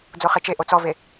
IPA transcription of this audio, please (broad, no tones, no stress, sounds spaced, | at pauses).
d͡z o χ e t͡ʃ e ʔ o t͡s ɔ v e